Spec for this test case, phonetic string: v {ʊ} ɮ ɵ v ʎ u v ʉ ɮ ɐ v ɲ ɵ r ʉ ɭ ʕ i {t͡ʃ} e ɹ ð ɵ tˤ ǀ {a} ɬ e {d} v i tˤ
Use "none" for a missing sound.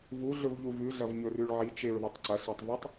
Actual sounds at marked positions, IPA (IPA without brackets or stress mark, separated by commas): u, t͡ʃ, ɐ, tˤ